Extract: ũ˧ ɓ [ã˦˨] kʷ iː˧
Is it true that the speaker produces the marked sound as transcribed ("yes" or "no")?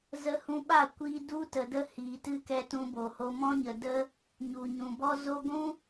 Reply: no